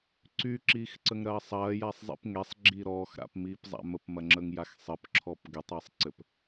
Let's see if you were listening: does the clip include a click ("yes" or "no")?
yes